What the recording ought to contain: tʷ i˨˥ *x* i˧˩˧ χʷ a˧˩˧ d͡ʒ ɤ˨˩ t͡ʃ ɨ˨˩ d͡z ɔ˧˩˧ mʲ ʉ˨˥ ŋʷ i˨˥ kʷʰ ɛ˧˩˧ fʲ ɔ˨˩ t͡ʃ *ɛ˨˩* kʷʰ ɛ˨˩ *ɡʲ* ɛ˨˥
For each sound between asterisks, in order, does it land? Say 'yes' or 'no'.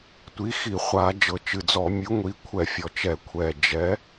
yes, no, no

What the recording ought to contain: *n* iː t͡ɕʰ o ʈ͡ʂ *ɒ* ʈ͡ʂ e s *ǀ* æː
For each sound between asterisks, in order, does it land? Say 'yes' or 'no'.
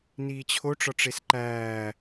yes, yes, no

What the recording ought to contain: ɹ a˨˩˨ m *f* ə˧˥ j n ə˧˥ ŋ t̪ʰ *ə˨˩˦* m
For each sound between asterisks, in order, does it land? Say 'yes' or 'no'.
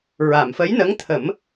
yes, yes

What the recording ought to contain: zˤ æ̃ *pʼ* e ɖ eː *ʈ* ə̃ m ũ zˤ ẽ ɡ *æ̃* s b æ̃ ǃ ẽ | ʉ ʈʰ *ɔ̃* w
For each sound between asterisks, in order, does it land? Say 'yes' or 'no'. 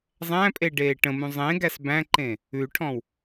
yes, yes, no, yes

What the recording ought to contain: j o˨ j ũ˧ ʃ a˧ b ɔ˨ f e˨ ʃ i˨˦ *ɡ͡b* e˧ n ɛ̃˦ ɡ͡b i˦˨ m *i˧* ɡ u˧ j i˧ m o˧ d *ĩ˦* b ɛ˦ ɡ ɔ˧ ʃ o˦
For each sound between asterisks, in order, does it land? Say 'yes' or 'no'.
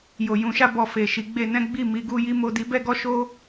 yes, yes, no

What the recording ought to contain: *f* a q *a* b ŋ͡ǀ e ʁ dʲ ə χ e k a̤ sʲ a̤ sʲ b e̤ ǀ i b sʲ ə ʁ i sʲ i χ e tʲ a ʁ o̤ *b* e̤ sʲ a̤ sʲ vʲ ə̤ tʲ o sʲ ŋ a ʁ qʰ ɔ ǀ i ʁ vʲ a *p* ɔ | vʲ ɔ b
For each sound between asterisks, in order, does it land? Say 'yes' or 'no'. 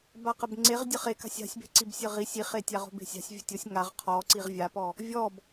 no, no, yes, yes

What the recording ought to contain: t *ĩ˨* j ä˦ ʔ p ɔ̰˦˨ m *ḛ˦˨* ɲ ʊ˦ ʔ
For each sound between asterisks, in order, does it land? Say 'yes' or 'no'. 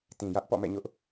yes, no

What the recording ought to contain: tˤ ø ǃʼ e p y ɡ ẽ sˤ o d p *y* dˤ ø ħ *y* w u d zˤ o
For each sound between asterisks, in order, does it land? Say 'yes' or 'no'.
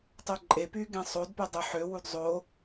yes, no

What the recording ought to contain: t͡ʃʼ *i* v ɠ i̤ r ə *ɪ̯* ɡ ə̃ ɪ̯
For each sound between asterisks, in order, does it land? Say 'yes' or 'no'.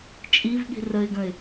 yes, yes

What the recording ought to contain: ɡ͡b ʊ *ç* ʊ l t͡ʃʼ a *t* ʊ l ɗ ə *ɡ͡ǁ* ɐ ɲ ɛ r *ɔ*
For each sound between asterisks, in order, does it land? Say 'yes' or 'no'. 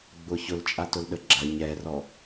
yes, yes, yes, yes

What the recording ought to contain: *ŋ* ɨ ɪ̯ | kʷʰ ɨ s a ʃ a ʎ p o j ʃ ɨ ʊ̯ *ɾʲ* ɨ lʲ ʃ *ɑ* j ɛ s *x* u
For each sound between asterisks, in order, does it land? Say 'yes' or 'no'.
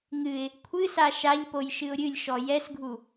yes, yes, no, no

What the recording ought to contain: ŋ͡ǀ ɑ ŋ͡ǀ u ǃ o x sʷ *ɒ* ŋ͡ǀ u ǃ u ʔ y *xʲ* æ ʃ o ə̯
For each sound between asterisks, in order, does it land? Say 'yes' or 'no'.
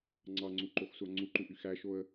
no, no

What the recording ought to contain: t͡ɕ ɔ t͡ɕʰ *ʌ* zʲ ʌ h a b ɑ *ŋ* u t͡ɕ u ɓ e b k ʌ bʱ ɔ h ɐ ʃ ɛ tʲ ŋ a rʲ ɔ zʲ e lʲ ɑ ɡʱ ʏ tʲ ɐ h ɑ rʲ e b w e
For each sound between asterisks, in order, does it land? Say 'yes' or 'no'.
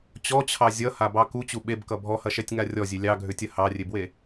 no, no

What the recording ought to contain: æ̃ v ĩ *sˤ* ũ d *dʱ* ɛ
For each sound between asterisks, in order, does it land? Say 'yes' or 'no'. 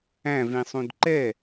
yes, no

